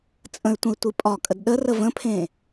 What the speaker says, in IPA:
t͡sʼə̃y̯tʷə̃i̯ tʷipʼɒkʼəd ɗərə və̃pʰẽ

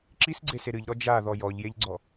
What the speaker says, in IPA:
ǁisɡ͡ǀese ɾɨʎɾɔ d͡ʒaðɔ jɔʎjeʎɡ͡ǀɔ

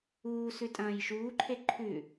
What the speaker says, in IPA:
uːsʉ tʼɐ̃ːjʃuːǃʰe ǃʰʉ

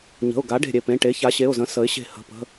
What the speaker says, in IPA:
ɲə̤˩˧˩ʊ̯ɡa˩˥ ɖe̤˧˩ɾʲe˧˩pẽ˩˧˩ ʈe˩˥ça˩˥ɕe˩˧˩ʊ̯zə̃˩˥ sə˩˥ɪ̯ɕe̤˧˩ hə̤˩˧˩pə̤˩˧˩

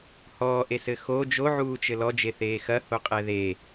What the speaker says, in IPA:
hɔːʔesɘ xo d͡ʒoʕuːt͡ʃɘ lɔd͡ʒeθeː xɐhoqʼɛ ðe

